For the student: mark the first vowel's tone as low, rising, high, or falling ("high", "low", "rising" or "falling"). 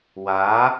rising